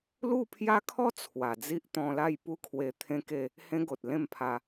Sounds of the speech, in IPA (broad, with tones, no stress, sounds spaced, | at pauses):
l u˥˧ pʰ j a˦ kʰ ɔ˦ t͡sʰ w a˨˩ d͡z i˦ ʔ t̪ ɔ̃˧ l a˥˧ j p u˥˧ kʰ w e˧ t̪ʰ ẽ˦ k e˥˧ | h ẽ˦ ɡ o˨ t̚ l ẽ˥˧ m pʰ a˧